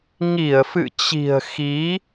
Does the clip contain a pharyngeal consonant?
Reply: no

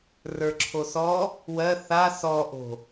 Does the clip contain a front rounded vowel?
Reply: no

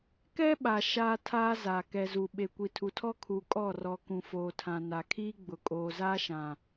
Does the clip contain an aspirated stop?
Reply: yes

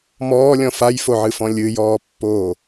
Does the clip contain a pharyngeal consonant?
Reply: yes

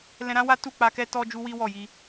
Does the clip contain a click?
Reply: no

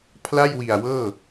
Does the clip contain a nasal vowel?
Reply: no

